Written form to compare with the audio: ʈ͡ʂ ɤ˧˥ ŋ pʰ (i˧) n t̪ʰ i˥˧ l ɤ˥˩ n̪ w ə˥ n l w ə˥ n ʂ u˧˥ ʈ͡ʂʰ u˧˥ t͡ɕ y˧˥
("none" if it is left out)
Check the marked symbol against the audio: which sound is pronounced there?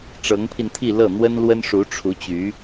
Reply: i˧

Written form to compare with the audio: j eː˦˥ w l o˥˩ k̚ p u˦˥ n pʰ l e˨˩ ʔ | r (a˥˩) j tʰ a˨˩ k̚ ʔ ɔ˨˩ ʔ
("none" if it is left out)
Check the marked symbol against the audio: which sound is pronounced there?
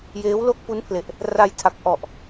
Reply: a˧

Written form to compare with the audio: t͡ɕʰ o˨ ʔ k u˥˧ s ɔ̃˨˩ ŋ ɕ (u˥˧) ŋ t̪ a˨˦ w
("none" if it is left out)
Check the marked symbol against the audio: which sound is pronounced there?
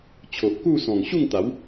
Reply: u˥˧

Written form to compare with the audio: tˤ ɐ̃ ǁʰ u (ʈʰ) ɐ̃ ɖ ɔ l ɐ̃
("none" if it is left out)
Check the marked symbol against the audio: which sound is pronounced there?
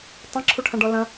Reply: ʈʰ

